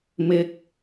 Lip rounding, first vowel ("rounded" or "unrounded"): unrounded